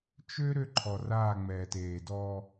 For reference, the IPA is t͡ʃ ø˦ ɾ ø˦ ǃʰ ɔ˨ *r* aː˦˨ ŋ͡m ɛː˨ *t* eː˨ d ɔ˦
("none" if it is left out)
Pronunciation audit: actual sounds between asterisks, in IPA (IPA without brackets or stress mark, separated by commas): r, t